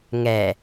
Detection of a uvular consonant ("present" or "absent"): absent